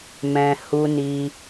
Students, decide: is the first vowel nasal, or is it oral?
nasal